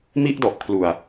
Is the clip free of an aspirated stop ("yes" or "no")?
no